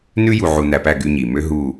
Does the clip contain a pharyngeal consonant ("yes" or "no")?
yes